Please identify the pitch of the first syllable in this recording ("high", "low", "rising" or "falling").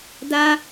high